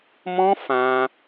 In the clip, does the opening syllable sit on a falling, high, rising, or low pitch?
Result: high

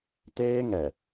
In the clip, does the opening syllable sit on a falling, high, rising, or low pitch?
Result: high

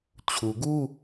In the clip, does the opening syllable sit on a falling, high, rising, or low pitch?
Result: low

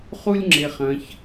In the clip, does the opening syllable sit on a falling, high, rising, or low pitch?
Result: high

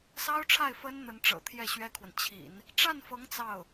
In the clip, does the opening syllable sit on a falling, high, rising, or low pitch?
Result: high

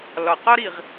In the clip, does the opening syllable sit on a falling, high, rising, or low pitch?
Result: low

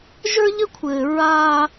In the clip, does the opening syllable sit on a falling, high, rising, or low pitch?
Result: high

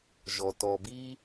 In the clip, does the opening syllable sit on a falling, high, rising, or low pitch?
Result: low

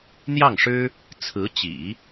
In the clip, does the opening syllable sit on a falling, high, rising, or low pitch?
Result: falling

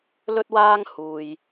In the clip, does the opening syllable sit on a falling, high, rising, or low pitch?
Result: high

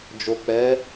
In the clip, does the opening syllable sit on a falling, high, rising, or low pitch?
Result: low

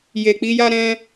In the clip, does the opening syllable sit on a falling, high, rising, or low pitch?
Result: low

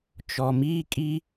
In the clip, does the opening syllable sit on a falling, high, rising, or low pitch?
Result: low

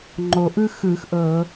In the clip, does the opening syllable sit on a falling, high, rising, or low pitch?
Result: low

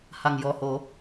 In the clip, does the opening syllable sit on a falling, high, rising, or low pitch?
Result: low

